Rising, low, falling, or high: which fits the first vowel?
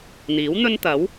rising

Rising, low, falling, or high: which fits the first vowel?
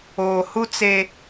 low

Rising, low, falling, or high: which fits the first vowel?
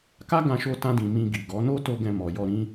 high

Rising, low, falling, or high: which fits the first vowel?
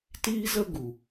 high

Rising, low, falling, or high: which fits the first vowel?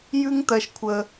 high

